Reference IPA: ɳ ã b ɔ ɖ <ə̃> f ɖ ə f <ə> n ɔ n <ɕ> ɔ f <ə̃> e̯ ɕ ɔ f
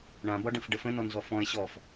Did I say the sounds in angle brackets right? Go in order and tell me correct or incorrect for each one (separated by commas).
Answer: correct, incorrect, incorrect, incorrect